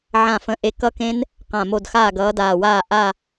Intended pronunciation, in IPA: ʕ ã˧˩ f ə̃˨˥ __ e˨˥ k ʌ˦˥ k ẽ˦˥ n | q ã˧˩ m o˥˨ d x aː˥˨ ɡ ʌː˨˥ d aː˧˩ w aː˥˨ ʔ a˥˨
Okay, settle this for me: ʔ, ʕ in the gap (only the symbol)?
ʔ